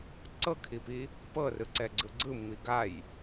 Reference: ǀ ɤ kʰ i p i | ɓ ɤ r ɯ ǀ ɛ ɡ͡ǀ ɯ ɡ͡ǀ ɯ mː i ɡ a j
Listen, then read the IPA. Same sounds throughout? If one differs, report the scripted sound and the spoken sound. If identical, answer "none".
ɓ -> p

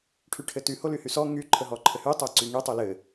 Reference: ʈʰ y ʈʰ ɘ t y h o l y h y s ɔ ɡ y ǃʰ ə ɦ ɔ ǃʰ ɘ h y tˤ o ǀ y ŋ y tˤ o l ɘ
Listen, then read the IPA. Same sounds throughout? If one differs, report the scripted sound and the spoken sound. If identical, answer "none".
ɡ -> ŋ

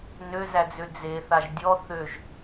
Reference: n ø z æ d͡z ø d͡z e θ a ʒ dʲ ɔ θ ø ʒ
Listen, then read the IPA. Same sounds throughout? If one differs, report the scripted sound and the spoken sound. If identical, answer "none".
none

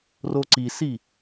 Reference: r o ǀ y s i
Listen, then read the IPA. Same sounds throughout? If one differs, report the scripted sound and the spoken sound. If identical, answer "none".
y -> i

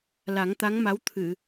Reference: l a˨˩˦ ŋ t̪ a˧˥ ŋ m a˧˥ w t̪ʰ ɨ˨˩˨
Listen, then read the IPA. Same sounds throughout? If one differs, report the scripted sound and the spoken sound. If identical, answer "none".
none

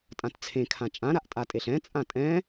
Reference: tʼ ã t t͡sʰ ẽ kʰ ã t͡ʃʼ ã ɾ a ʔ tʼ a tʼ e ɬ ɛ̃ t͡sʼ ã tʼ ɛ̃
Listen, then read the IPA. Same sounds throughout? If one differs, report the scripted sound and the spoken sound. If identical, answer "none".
none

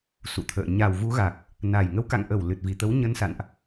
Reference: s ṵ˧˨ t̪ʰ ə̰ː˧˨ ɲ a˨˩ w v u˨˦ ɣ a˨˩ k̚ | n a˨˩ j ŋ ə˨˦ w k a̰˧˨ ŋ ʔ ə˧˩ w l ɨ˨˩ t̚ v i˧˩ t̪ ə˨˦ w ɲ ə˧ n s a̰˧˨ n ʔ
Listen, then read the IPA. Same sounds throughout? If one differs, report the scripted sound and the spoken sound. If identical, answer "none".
none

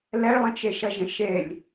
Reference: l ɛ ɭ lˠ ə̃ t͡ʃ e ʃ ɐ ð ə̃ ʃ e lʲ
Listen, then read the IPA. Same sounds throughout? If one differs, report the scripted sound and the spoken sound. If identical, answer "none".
ð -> ʒ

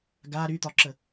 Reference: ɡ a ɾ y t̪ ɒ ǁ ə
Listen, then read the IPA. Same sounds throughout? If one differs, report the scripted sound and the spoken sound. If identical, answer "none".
none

